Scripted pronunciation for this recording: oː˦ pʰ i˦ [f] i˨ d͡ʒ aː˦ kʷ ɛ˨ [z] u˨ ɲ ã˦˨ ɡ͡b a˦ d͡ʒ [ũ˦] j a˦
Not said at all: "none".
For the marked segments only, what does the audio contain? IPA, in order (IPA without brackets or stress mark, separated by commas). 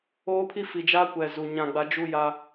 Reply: f, z, u˦